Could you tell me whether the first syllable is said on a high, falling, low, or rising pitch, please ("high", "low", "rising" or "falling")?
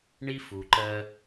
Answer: high